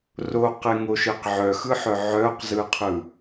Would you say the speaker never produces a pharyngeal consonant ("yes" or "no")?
no